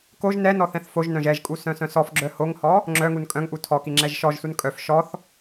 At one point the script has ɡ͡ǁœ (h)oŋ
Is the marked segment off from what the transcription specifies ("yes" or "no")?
no